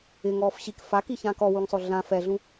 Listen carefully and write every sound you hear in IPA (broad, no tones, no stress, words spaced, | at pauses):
ɪŋɔːf ɕik fakiçãːk ɔwuŋsˤo ɮã fɛɮũ